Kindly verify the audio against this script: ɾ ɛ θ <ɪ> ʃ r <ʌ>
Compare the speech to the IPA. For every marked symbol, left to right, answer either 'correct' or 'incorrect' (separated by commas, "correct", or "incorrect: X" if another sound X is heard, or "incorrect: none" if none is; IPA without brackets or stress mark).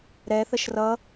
incorrect: ə, correct